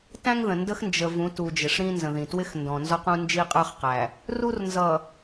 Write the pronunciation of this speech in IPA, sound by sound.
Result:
t æ̃˦ ŋ ð ə̃˨ n d ə˦ x n d͡ʒ ə˨ v ũ˨˦ t u˨ d͡ʒ ɪ˨ ʂ ɾ ĩ˦ n z ə̃˨ ð ĩ˨ t w ɪ˦ x n d ɔ̃˨ n z ɔ˦ q ũ˦ n d͡ʒ i˦ qʼ ə˞˦ χ q æ˨ | r u˦ r n z ʌ˨

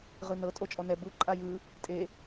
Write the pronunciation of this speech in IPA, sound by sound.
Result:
ʁ ɯ n ɤ tʼ o t͡ʃʼ ɔ n ɛ b u ǃʼ a j ɯ | tʼ e

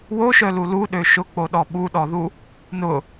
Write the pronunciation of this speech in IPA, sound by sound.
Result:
w o ʃ œ l u l u ɗ ø ʃ ʊ k͡p o ɗ ɔ ɓ u ɗ ɔ ð u | n ʊ

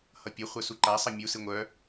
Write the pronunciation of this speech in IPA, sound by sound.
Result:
h ʌ pʲ ə χʷ œ s u ǃ a sˤ ʌ mʲ u s ɨ ŋʷ œ

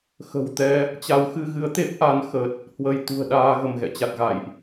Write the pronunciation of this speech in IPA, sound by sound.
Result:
x ə̤˨˩ w t̪ ɛ˧ | t͡ɕ a˨˦ w x ɨ˧ ɣ ɨ˨˦ ə̯ t̪ e˦˥ p̚ ʔ a˨˦ n x ə˨˩ t̚ | h w ə˧ j t̪ ṳ˨˩ ə̯ ɗ aː˧ ɣ ə˧˩ m ɣ ɛ̰˧˨ t͡ɕ a˨˩ t̚ ɣ a̰˧˨ j ʔ

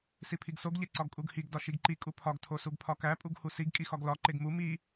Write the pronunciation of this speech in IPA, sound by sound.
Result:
s i pʰ i ɡ s o ɡ ʎ e ǀ ɒ ɡ kʼ u ɡ h i ɡ d ɒ ʃ i ɡ ǃ i kʼ u pʰ ɒ ɡ tʰ o s u ɡ pʰ ɒ k æ pʼ u ɡ h u s i ɡ kʼ i x ɒ ɡ l ɒ ǃ e ɡ m u m i

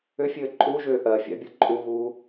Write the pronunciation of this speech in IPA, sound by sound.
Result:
ʏ fʲ ɘː ǃʼ u ʒ ʏː ʔ ɜ fʲ a̰ bʲ ɤ ǃʼ u ɣ uː

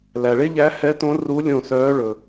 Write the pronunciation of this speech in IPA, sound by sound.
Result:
l æ˩ ɭ e˥ ʎ æ˧˥ h ɛ˧˥ t õ˧˥ r u˧˥ lʲ õ˦˨ s œː˧˥ ɭ ɵ˩

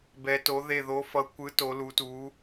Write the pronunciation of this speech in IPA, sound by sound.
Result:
b ɛ˧˥ t o˧˥ ð e˦˨ ð o˧˥ f ʌ˧˥ kʷ ɯ˧˥ t o˧˥ l u˧˥ t u˧˥

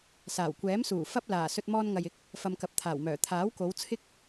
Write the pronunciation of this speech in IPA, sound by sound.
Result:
s aː˨˩ w kʷ ɛː˨˥ m s uː˨˩ f ɐ˥ p̚ l aː˨˩ s ɵ˧ t̚ m ɔː˧ n ŋ ɐ˨ j ɪ˨˥ k̚ | f ɐ˧ m k ɐ˨˥ p̚ t̪ʰ aː˨˩ w m œː˨˩ t̪ʰ aː˨˥ w k o˨˧ w t͡sʰ ɪ˥ k̚

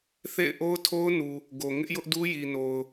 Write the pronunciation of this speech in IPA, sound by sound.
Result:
θ ḛ˦˨ ɪ̯ ʔ o˦ ʊ̯ tʰ o˦ ʊ̯ n u˨ | ɡ o˨ ŋ ɪ˦ ʔ j ʊ˦ ʔ d u˦ j i˨ n o˨ ʊ̯

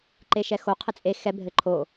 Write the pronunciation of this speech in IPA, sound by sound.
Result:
ǃ e ʃ ɛ x o qʰ ɘ t͡sʼ e x ɛ bʱ ɘ ǃʰ o

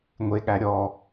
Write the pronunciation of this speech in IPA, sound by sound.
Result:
ŋʷ e ɠ æ ɾʲ ɔ

